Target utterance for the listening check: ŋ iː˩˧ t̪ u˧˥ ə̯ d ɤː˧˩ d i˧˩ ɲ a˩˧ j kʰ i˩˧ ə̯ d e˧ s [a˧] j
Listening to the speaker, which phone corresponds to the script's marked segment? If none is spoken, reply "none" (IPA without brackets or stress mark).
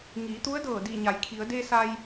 a˧